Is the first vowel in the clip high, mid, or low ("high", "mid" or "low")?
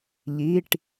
high